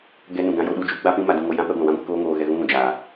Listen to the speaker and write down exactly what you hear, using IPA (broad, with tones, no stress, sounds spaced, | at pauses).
ɡ ɛ˧ n ũ˨ ɡ ã˧ j o˧ ɗ u˧ d͡ʒ u˦ ɡ͡b a˦ p ĩ˦ m a˧ d ũ˧ ŋ o˧ j ã˦ p ɛ˧ ɡʷ ã˨ w ã˦ ɡʷ ɛ˧ k oː˦ ŋ oː˧ ɣ ɛ˧ ɣ ũ˧ ɣ ũ˨ d͡ʒ a˨